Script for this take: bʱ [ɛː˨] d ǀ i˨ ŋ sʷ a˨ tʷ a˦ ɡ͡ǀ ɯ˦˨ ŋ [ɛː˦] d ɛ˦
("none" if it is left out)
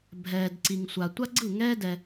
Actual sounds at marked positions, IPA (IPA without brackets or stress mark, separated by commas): ɛː˨, ɛː˦